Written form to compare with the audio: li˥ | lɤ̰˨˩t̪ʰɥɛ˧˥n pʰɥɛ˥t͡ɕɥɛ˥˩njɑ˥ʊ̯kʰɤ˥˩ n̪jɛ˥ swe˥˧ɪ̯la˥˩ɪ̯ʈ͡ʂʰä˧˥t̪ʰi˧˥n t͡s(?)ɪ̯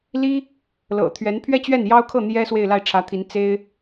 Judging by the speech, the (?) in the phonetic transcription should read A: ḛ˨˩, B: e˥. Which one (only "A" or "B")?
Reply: B